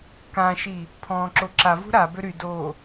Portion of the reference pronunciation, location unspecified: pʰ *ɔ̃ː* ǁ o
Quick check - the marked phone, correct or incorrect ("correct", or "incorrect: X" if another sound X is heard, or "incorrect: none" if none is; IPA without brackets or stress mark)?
correct